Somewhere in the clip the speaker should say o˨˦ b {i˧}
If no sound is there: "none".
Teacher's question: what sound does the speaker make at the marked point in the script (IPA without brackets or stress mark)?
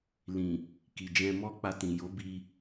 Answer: i˧